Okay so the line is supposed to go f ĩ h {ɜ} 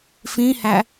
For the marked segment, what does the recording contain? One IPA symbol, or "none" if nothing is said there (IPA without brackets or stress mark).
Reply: æ